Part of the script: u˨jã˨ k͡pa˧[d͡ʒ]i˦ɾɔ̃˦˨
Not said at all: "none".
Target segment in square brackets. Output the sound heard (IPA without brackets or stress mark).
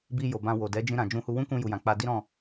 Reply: d